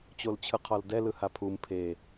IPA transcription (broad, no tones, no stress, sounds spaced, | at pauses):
t͡ɕ o l t͡ɕʰ ɯ qʰ ɔ l d ɛ l ɯ h a pʰ u m pʰ e